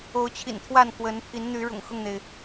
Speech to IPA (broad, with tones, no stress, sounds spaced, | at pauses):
o˨˦ ʊ̯ t͡ɕʰ ḭ˨˩ n t̪ʰ w a˥˨ n k w ə˨˦ n pʰ i˨˦ n n̪ y˨˦ ɻ ʊ̰˨˩ ŋ x ʊ˥˨ ŋ n̪ e˩ ɪ̯